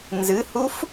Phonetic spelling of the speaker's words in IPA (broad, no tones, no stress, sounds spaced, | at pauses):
n z ɨ h u f